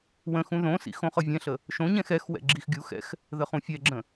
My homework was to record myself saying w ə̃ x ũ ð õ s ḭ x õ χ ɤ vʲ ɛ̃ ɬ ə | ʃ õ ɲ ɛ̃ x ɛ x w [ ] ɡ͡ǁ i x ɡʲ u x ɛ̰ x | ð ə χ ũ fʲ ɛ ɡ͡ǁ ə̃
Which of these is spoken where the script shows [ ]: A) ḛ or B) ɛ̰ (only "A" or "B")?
B